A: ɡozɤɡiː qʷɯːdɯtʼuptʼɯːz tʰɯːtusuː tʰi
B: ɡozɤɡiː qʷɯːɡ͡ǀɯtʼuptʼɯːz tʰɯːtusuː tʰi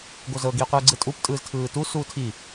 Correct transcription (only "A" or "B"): B